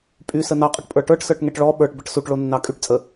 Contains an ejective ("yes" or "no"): yes